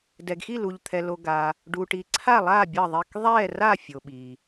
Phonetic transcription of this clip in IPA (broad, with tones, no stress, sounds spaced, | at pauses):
d ɛ˨ ɡ x i˦˨ l u˨ ʎ t̪ʰ ɛ˨ l o˨ ɡ a˨ | ɖ u˨ ʈ i˨ ǀʰ a˦˨ lˠ aː˦˨ bʲ ʌ˦˨ ðˤ i˦˨ k ðˤ ɛː˦˨ r a˦˨ fʲ o˨ ɓ i˨